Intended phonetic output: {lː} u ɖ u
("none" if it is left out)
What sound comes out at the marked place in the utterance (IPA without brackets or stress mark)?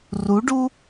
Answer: r